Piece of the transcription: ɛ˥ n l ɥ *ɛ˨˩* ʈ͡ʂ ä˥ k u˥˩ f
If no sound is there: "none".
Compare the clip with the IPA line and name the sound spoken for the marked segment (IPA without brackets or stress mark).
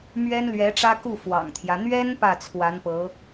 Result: ɛ˧˥